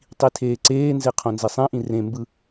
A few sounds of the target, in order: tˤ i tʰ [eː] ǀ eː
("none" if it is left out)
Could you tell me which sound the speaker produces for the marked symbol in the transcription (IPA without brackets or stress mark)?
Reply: eː